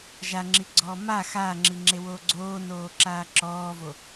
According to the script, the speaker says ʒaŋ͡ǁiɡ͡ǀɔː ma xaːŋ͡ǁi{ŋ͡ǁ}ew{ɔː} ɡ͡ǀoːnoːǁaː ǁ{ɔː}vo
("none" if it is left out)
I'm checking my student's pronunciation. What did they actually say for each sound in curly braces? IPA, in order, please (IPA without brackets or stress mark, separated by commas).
ŋ͡ǁ, oː, ɔː